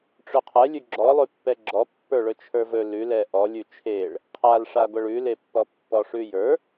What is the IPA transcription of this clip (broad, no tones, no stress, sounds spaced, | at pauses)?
ʈ͡ʂ ɵ qʰ ɛ lʲ ʉ ɡ͡ǁ ɔ lˠ ʉ pː ɛ ɡ͡ǁ ɔ pː ə˞ ɭ ɵ t͡ʃʰ ə˞ v ɵ l ʉ l ɛ ʔ ɔ lʲ ʉ t͡ʃʰ e ɭ | qʰ a l ʂ a ɡʷ ɛ ɭ ʉ l e pː ɔ pː ɔ ʂ ʉ j ə˞